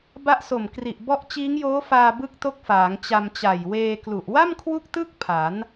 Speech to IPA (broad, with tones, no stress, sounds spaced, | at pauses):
b a˦˥ ʔ s o˨˩ m k r i˨˩ ʔ b ɔ˦˥ ʔ t͡ɕ iː˦˥ ŋ j oː˦˥ f aː˧ b ɯ˦˥ k̚ t o˦˥ k̚ f aː˩˦ ŋ t͡ɕ a˧ m t͡ɕ a˨˩ j w eː˧ k l u˨˩ ʔ w a˥˩ m kʰ w u˦˥ k̚ t ɯ˦˥ k̚ pʰ a˩˦ n